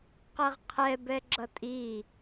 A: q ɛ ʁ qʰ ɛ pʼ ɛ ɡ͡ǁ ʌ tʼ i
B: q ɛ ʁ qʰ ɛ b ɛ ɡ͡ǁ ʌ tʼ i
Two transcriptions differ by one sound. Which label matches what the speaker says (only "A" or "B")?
B